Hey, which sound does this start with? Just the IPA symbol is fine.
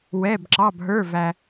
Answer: w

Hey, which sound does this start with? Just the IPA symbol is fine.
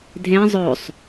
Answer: dʱ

